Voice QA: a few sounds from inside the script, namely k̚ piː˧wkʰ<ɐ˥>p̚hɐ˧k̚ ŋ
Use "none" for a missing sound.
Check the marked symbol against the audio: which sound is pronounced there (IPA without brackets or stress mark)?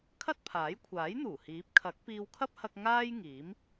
ɐ˥